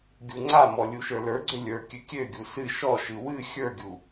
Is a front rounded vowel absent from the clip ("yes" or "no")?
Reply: no